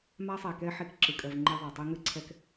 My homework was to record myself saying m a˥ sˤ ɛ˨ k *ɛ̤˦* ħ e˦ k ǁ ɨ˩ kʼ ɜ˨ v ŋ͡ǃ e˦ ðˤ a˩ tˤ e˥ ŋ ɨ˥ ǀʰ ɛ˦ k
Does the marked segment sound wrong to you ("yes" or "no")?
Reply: yes